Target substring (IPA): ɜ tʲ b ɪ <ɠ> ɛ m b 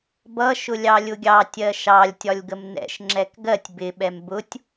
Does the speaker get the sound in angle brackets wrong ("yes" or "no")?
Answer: yes